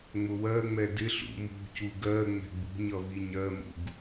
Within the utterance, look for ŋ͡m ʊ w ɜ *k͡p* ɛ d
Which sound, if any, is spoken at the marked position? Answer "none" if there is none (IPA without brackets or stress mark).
ŋ͡m